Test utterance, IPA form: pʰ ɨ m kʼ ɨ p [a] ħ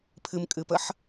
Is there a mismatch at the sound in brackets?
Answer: yes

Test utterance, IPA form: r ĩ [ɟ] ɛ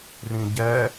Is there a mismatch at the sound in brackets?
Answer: no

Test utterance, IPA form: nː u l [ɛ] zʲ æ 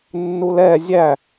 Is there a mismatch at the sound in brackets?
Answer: no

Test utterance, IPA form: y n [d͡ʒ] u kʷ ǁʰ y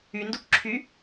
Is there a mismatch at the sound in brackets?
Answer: yes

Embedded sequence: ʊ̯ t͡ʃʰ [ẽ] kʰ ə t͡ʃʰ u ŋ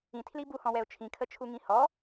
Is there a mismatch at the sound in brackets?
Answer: yes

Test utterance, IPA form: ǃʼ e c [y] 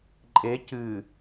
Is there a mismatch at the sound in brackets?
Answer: yes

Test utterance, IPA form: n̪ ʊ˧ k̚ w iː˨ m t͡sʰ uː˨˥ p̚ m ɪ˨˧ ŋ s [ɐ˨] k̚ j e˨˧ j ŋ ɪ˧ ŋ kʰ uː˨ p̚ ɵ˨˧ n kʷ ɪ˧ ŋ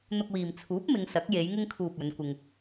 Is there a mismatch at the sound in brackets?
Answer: yes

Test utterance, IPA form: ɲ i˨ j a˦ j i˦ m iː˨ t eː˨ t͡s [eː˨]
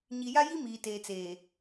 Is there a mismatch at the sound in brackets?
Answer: no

